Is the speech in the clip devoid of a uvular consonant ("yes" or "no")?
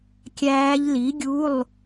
yes